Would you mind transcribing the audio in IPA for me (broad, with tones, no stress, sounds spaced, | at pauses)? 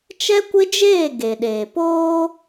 t͡ʃ ɛ˦ kʷ ɪ˦ d͡ʒ eː˦˨ ɡ e˨ ɗ eː˨ p oː˦